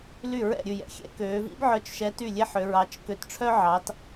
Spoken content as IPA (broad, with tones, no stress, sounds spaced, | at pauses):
l y˥˩ ɹ ɛ̰˥˩ ɾʲ ʉ˥˩ j ɛ̰˥ xʲ ɛ̰˥ k øː˨˦ v ḭ˥ b ʕ œ˨˦ t͡ʃ ʃ ɛ˨˦ t y˥˩ lʲ e˥ ħ ø˨˦ ɹ ɑ˨˦ t͡ʃ k ø˨˦ t ʈ͡ʂʰ œ˥ ʕ ɑ˨˦ t